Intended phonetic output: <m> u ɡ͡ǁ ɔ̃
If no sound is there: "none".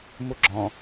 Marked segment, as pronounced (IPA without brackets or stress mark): m